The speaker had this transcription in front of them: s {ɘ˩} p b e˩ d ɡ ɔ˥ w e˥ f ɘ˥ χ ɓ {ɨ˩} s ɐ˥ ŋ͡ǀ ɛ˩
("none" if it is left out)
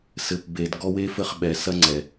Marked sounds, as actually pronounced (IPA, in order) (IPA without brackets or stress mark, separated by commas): ɘ˩, ɛ˩